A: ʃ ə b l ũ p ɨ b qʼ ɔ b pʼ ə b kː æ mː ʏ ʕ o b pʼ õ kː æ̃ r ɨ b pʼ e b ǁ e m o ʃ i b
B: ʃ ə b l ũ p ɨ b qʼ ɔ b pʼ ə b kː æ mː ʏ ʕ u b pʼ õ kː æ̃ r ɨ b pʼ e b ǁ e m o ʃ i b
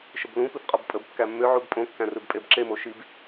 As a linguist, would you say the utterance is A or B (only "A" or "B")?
B